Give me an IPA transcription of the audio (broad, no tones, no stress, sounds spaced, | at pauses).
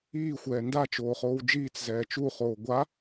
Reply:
iː xʷ ɛː n d a t͡ʃ oː χ oː w d͡ʒ iː t͡s z ɛː t͡ʃ u χ oː ɡʷ a